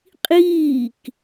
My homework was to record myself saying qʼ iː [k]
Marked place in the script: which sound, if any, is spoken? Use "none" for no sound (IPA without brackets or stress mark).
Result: k